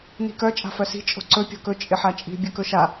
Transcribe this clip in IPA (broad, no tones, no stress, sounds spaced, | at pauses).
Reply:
n i̤ k œ t͡ʃʼ a̤ f œ s i̤ t͡ʃʼ o̤ ǀ ɵ pʲ o̤ k ɵ t͡ʃʼ ɪ ħ a t͡ʃʼ i̤ bʲ ɵ k ɵ ʃ a